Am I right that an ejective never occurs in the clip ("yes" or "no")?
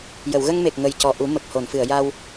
yes